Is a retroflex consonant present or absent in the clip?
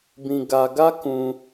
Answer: absent